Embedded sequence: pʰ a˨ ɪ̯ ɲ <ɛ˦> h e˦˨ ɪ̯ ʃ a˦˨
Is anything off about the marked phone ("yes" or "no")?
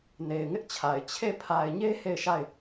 yes